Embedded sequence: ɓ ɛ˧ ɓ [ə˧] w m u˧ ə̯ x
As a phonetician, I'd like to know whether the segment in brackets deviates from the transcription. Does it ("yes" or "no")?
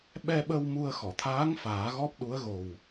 no